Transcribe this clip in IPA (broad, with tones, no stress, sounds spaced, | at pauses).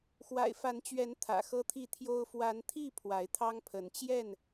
x w a̰˨˩ ɪ̯ f a˨˦ n t͡ɕ ɥ ɛ˨˦ n t̪ʰ ä̰˨˩ x ɤ˦ t̪ʰ i˥˨ t̪ʰ j o˦ ʊ̯ f w a˨˦ n t̪ʰ i˥˨ pʰ w a˨˦ ɪ̯ t̪ʰ ɑ˦ ŋ pʰ ə˨˦ n t͡ɕ j ɛ˥˨ n